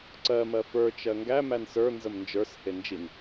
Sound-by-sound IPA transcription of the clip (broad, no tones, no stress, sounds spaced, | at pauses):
ǀ ɜ m ɜ f ə˞ t͡ʃ ɜ ŋ ɡ æ m æ n s ə˞ n z ə m n d͡ʒ ə˞ s h e n d͡ʒ i n